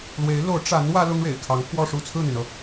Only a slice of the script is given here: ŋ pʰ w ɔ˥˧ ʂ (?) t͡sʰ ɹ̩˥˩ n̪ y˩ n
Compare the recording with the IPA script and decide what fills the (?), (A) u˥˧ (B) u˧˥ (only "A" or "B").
A